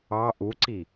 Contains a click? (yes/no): yes